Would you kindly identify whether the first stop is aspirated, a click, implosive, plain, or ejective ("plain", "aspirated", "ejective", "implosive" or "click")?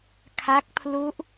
aspirated